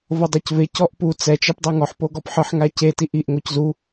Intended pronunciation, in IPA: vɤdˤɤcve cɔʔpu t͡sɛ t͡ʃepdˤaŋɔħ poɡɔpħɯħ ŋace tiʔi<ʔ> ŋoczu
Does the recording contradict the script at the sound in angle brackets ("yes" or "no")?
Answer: no